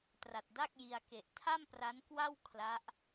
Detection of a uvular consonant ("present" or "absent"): absent